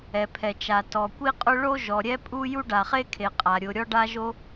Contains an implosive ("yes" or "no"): no